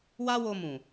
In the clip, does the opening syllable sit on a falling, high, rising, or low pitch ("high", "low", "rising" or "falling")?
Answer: high